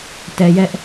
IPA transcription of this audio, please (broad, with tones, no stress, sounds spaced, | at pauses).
t ɛ˦ j ɛ˦ ʔ